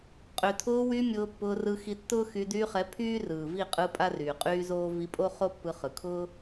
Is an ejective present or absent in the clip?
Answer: present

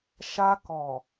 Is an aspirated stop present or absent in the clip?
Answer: absent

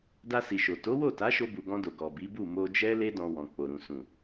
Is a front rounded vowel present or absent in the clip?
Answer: absent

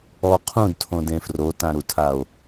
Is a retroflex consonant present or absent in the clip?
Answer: absent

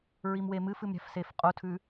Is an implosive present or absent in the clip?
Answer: absent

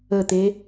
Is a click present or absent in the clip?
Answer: absent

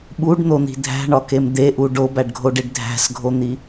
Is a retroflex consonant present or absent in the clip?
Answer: present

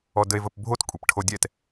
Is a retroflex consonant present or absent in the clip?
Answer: present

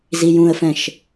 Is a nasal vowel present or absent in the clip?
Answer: present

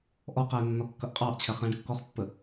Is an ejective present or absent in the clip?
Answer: present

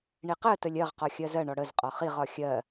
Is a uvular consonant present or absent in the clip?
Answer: present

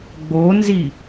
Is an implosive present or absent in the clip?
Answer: absent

